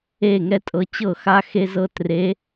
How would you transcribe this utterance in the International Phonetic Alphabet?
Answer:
e˥˨ ŋ ɛ˥ tʼ ɤ˧˥ t͡ɕ ɤ˥˨ x a˥ x e˥ z ɤ˥ t r e˧˥

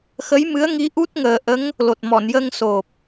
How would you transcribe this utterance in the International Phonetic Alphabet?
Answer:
x ə˧˥ j m ɨ˧˥ ə̯ ŋ i˧˥ ʔ u˦˥ t̚ ŋ əː˨˩ ʔ ə˧˥ ŋ | l o˨˩ t̚ m ɔ˨˩˨ n j ə˧ ŋ s o˨˩ p̚

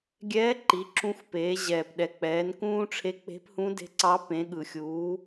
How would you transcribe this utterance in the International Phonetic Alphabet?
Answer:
ɡʲ ɛː˧˥ ǃ i˩˧ ǁ ũ˧˥ xʷ p eː˩˧ ʑ ɛː˩ p ɗ ɛ˩ k͡p ɛː˩˧ n k ũː˥ ʈ͡ʂʰ e˧˥ k͡p e̤˧˥ p h ũ˧˥ d e̤˧˥ ǀ ɑ˧˥ p ẽ˩˧ ɠ ɯ˩ xʲ uː˩˧

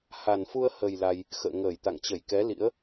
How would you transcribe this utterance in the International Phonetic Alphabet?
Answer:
h a˨˩ n f u˧ ə̯ h ə˨˩ j l a˧ j | x ə̰ː˧˨ ŋ əː˧˩ j t̪ a̰˧˨ ŋ t͡ɕ ə˧˩ j k ɛ˨˦ l ḭ˧˥ ə̯

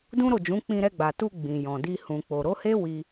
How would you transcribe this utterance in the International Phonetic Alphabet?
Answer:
d ũ˦ ɾ o˦˨ d͡ʒ ũ˨˦ k͡p ĩ˧ ɾ ɛ˧ ɡ͡b a˨ t u˧ ɡ͡b ĩ˨ j ɔ̃˨ d i˧ h ũ˨ k͡p o˨ ɾ o˨˦ h e˦ w i˧

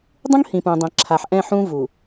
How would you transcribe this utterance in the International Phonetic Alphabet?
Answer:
dˤ ũ˦ ŋ h ĩ˨ p ũ˨ dˤ ẽ˨ ǁʰ a˨ ħ ʔ ɛ̃˦˨ ħ ũ˦ v u˨

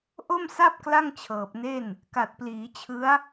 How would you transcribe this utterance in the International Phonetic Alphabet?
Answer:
ʔ o˥˩ m s a˥˩ p̚ k l a˥˩ ŋ t͡ɕʰ ɤː˨˩ p̚ n e˥˩ n | k a˨˩ t̚ p l iː˩˦ t͡ɕʰ ɯ˦˥ a̯

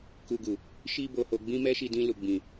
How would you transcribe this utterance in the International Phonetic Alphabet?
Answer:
k u˧ ɡ u˨ | ʃ i˦ b o˧ h o˧ ɡ͡b ĩ˦ m ɛ˦ ʃ i˧ d ĩ˧ l u˨ ɡ͡b ĩ˨

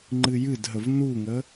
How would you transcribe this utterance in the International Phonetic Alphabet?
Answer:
ŋ͡ǃ ɨ j ɨ d ɦ ə v n u ŋ ə

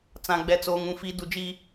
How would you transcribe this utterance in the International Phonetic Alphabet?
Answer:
t͡s ã˨ ɡ͡b ɛ˨ t͡s oː˨ ŋ ũ˨ f i˨˦ d u˨ d͡ʒ i˦

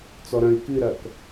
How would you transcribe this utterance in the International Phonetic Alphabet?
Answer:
t͡s ɔ ɾ ɐ̃ i̯ k ɨ ɾ ɐ k

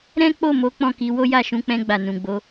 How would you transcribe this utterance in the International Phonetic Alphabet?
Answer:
ɾ ɛ̃˦ k͡p o˦˨ m o˨˦ k͡p ɔ̃˦˨ k i˨˦ w o˦ j a˦˨ ʃ ũ˧ k͡p ɛ̃˧ ɡ͡b a˨ n ũ˨ ɡ͡b o˨˦

